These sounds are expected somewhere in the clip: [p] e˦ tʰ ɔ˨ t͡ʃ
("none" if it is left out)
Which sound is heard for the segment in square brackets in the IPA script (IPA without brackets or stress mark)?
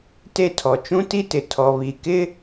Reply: t